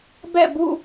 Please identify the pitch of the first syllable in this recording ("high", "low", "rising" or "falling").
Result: falling